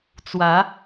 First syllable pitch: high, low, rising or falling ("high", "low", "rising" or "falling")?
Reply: rising